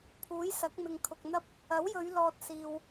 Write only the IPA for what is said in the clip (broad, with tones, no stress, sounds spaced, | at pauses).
pʰ uː˨˥ j s ɐ˨˥ k̚ m ɪ˨ ŋ kʰ ʊ˨ k̚ n̪ ɐ˥ p̚ | ɐ˨˥ w j ɵ˨˧ ɥ l ɔː˨ t̚ s iː˨ w